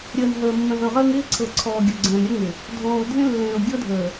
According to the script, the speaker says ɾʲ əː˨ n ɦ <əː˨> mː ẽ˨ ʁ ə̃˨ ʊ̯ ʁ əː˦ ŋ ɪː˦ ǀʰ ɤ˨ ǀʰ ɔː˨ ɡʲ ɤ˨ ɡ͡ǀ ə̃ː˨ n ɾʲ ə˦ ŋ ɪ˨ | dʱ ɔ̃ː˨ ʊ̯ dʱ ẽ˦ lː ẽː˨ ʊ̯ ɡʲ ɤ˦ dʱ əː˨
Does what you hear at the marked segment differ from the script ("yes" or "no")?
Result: no